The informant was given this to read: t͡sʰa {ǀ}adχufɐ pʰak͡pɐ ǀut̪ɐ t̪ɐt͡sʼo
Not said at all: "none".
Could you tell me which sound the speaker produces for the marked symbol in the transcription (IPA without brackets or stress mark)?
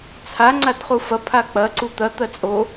ŋ͡ǀ